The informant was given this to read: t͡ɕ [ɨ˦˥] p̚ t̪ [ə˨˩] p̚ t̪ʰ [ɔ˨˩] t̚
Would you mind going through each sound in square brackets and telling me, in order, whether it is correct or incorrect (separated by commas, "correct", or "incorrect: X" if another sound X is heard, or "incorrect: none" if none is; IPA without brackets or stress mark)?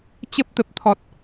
incorrect: ə˦˥, correct, correct